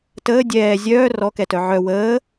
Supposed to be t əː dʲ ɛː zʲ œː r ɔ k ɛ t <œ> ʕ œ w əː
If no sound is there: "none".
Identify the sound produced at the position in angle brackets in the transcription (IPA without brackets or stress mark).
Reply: œ